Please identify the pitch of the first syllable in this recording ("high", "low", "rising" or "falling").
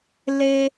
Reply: high